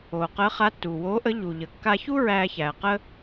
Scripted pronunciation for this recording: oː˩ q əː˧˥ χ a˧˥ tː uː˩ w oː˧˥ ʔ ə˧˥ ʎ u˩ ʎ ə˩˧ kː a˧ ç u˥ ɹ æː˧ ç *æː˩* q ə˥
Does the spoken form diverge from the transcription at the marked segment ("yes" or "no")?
no